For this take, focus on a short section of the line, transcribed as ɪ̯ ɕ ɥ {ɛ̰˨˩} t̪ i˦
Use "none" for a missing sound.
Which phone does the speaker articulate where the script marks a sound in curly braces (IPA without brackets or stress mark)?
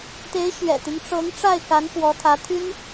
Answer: ɛ̰˨˩